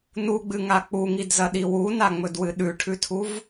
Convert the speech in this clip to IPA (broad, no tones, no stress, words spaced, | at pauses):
nuɡ͡bɨŋa k͡puŋidzɐɗi wunaŋ͡mɵdwɨ ɗʉʈʰʉtʰuv